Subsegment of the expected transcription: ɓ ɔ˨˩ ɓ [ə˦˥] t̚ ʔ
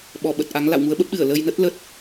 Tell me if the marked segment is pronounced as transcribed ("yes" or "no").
no